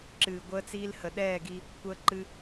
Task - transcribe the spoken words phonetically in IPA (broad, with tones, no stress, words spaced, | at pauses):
ǁɨː˨ɡʷəː˧t͡siː˧l hə˨ɗɛː˦˨ɡi˧ | kʷəː˧ǃɨ˧